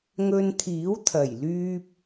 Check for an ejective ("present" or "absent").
absent